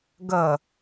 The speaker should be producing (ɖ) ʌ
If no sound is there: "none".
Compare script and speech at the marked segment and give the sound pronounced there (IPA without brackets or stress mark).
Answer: ɡ